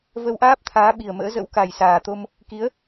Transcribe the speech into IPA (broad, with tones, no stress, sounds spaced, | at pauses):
v ə˧ w ʔ aː˦˥ p̚ t̪ʰ aː˨˦ ɓ i˨˩ ə̯ m ə̰ː˧˥ z ə̰˧˥ w k a˨˩ j s aː˨˩ t̪ o˧ m | k i˨˦ ə̯